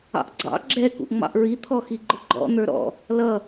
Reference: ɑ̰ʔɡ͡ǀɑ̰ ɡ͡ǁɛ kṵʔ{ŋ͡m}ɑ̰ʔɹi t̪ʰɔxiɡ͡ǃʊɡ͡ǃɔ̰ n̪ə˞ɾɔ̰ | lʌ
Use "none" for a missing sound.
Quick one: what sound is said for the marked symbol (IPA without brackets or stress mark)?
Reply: ŋ͡m